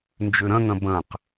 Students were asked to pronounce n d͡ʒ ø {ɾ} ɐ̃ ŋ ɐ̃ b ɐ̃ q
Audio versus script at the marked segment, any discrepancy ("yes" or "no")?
no